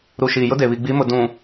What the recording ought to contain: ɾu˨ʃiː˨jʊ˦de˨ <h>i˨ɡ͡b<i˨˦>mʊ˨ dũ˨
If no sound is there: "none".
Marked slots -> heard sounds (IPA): β, i˨˦

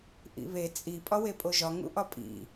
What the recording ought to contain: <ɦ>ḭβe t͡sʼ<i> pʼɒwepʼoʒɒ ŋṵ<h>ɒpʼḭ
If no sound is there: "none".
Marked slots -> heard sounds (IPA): ʔ, i, ʔ

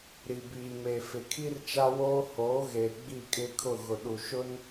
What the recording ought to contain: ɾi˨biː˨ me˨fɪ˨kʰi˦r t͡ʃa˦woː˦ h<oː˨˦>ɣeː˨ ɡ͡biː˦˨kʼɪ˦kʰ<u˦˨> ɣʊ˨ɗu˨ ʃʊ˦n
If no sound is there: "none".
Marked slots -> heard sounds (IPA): oː˨˦, ʊ˦˨

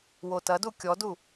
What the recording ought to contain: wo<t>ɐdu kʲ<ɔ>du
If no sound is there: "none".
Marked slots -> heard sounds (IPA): t, ɔ

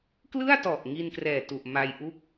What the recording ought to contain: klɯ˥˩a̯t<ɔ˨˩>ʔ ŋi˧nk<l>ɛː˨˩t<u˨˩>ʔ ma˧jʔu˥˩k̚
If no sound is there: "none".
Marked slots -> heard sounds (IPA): ɔ˨˩, r, u˨˩

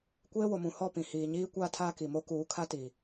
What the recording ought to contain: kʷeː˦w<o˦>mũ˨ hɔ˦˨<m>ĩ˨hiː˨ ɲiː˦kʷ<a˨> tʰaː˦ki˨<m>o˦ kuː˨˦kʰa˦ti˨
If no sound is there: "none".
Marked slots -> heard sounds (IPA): o˨, p, a˦, m

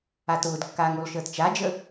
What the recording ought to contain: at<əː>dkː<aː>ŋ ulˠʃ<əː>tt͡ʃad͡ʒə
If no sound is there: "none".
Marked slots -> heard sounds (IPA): ʊː, aː, əː

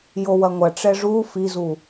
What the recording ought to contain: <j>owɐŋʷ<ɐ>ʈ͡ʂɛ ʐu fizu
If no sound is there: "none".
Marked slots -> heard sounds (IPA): j, ɐ

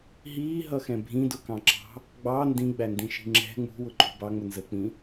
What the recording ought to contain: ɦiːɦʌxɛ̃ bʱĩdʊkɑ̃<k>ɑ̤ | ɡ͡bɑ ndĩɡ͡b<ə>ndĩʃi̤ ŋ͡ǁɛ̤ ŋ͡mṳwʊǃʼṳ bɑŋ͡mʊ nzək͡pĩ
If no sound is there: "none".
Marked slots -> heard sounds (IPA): ǁ, æ

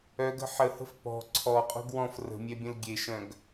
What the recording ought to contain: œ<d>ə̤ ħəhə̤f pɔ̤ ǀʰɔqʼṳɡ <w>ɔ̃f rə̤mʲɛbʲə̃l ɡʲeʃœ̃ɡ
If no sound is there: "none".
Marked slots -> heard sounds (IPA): ɡ, w

